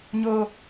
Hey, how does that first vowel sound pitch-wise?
high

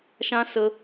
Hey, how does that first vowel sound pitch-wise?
high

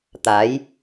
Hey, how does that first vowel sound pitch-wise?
rising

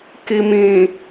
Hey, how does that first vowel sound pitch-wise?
low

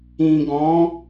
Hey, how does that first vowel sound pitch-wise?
low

